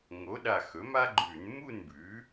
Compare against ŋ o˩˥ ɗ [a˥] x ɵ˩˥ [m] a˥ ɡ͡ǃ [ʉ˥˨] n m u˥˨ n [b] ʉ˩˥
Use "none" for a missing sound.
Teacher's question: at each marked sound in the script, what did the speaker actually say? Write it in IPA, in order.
a˧˩, m, ʉ˧˩˧, b

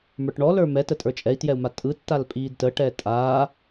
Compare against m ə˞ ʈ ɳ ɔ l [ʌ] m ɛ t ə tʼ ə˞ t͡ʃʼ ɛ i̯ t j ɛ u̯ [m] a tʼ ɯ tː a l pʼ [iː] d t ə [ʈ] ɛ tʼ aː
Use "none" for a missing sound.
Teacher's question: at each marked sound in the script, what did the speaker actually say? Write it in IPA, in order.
ə˞, m, iː, ʈ

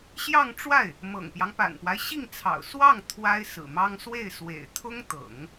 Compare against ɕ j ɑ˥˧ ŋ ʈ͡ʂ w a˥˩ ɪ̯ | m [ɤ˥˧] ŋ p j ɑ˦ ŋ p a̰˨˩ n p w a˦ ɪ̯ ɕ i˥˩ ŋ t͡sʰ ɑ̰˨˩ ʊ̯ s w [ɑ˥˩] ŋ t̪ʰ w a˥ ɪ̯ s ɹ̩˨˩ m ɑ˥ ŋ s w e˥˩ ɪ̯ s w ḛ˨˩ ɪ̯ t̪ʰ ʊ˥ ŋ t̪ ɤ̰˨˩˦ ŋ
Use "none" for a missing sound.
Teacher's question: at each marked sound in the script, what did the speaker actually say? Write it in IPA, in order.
ɤ̰˨˩, ɑ˥˩

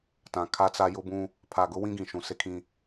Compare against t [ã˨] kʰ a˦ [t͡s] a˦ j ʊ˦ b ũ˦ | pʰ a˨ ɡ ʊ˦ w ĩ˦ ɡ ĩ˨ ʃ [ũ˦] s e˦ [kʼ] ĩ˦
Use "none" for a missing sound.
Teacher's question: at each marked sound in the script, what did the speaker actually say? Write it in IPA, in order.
ã˨, t͡s, ũ˨, kʰ

